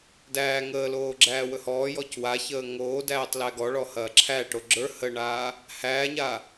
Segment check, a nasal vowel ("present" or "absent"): absent